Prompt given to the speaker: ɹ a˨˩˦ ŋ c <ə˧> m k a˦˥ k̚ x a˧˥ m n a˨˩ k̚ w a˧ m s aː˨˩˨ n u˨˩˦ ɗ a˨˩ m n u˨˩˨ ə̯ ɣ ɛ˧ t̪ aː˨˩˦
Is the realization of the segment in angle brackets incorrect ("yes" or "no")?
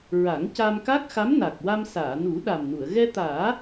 yes